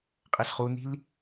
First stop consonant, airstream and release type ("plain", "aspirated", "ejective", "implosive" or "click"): ejective